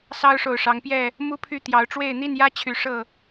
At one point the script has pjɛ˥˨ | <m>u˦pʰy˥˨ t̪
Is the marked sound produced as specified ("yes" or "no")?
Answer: yes